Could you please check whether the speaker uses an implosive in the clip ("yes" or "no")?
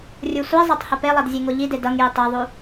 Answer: no